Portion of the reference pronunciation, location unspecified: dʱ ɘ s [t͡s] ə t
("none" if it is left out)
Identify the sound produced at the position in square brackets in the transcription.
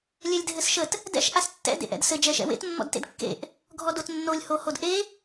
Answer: ʃ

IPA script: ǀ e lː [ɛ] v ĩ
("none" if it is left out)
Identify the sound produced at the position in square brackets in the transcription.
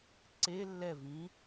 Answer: ɛ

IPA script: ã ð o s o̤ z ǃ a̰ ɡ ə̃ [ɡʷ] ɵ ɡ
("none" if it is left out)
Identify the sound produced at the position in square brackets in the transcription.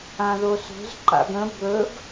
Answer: b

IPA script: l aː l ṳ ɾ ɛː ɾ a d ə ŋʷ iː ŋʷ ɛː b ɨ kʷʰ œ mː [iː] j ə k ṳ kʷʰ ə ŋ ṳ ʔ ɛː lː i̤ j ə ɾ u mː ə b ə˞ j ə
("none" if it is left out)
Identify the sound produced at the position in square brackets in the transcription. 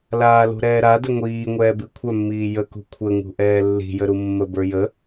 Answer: iː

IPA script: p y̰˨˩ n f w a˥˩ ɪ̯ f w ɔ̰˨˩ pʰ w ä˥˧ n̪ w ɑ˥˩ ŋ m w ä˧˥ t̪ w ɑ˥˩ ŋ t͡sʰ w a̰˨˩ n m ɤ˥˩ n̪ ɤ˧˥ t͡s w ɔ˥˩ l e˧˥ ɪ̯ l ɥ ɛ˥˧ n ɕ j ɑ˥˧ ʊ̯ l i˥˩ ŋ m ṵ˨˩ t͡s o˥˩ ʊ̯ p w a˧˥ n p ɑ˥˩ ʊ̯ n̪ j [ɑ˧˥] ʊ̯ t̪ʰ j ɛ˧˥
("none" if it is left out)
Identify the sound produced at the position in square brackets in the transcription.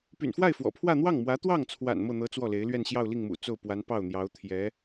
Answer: ɑ˧˥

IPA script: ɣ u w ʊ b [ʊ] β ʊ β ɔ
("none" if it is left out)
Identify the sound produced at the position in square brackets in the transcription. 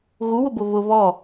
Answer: ʊ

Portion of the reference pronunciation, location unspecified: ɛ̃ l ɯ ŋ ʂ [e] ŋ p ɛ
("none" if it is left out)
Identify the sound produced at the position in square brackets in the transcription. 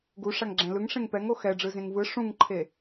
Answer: ẽ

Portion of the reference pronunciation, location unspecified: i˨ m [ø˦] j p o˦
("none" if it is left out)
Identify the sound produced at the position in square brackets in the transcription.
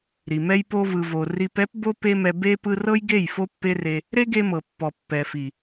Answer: ɛ˦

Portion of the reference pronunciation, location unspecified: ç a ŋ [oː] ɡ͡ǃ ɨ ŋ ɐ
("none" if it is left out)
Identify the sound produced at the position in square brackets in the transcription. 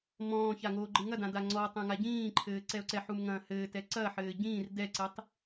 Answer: oː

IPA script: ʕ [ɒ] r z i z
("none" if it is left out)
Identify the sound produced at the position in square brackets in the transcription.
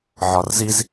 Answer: ɒ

